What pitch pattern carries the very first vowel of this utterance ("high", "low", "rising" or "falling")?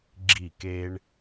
falling